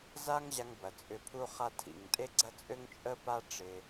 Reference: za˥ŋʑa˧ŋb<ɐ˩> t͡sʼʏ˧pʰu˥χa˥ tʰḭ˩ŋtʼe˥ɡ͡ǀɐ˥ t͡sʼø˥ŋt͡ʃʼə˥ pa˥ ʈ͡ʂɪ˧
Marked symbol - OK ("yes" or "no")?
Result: yes